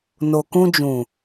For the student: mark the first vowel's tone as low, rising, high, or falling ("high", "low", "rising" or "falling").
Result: low